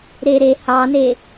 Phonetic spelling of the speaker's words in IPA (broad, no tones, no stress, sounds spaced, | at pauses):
ɾ e ɾ e h ɑ n e